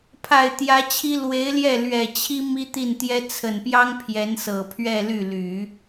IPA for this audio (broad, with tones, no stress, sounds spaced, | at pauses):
pʰ a˨˩ ɪ̯ t̪ j ä˧˥ t͡ɕʰ i˥ l w e˧˥ ɪ̯ l j ɛ˥˩ l ɥ ɛ˨˩ t͡ɕʰ i˥ m i˥ t̪ i˥˩ n t̪ j ɛ˥ t͡sʰ ə˨˩ n p j ɑ˥ ŋ pʰ j ɛ˧˥ n s ɤ˨˩ pʰ ɥ ɛ˥˧ l y˥˩ l y˨˩˦